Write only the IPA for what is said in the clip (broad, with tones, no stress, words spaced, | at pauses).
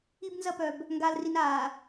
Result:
i˦bnzɐ˦pœ˨b | ŋɡaː˨lri˨n aː˨